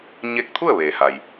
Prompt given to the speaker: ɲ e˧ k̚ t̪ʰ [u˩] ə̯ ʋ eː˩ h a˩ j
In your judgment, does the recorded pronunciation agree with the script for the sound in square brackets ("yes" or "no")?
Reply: no